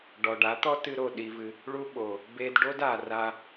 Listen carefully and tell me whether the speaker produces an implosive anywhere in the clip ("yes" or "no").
yes